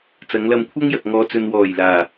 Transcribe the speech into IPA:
t͡s ɐ˨˧ ŋ l ɐ˧ m kʷʰ ɐ˥ ŋ j ɐ˨ k̚ ŋ ɔː˨˧ t͡s ɵ˨ n w ɔː˨˩ j l aː˨˩

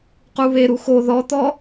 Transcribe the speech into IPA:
q u β e ɾ u x o ð ɔ t̪ ɔ

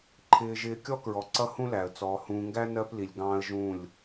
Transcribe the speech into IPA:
ǃʰ ɪː˨ ʒ ɪː˨ kʲ ɔ˦ k ɹ ɔ˨ ǀ ʌ˦ h ũ˦ l æ˨ ə̯ t͡s ɔː˨ h ũː˨ ŋ ɡ æ˦ n ɜ˦ p l i˨ lʲ ɡ ɑ̃ː˦ ə̯ ʒ ũ˦˨ lʲ

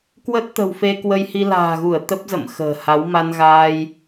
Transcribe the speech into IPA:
k w ə˦˥ t̚ t̪ ə̤˨˩ w f e˧ k w ə˧ j h i˧ l a̤ː˨˩ ɣ u˧˩ ə̯ t̪ ə˦˥ p̚ z ə̰˧˨ m x ə̤ː˨˩ h a˨˦ w m a˧ n ɣ aː˧ j

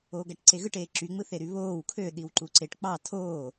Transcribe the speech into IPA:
oː ɡ æ ʈ ǀ e ɣ ɯ ʈ eː ǁ y ŋ͡m ɯ θ e ɾ y β oː w kʰ ø ɗ i w ǃ u ǀ e ʈ k͡p ɑ tʰ oː

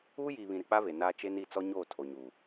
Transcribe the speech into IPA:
uː˦ j iː˨ β ĩ˨ ɾ ɪ˨ k͡p a˦ v e˨ n aː˦ t͡ʃ e˦ n i˦˨ t͡s ɔ˦ ɲ oː˦˨ tʰ o˨ ɲ u˨

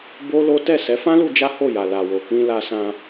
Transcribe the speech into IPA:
b o˦ l o˦ t ɛ˦˨ s ɛ˨˦ f ã˦ l u˧ d͡ʒ a˦ h o˦˨ j a˨ l a˨ w o˨ k ĩ˧ l a˧ s ã˧

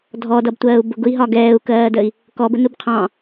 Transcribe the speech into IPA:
dʱ ɔ d ʌ b tʷ ɜː u̯ b ʊ ɡ ʊ i̯ ɦ ɒ ɡ ɛː u̯ k ɜː d əː i̯ | k ɔ b ə n u b qʰ ɑ̃

